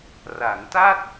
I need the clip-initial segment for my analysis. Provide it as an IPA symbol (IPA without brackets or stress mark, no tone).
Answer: r